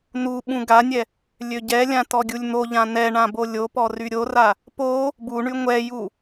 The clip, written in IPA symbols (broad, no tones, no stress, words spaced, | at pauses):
nuɓũ ɡanʲɛ | lʲøɟɛlʲã tɔɡʲulʲn̪oʎã nɛɳã bolʲopɔ ryɾʲora | po | buɳy ŋʷɛju